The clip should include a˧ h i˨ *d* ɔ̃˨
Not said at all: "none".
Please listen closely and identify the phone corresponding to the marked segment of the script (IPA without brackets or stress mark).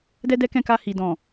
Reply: d